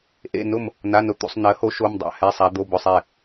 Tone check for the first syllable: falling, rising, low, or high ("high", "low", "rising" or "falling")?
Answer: falling